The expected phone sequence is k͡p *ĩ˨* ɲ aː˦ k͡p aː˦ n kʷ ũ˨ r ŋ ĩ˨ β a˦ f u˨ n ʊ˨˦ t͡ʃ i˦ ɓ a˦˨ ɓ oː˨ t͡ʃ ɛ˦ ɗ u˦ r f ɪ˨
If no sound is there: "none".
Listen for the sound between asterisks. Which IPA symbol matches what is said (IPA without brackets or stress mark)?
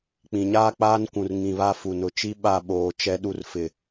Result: ĩ˨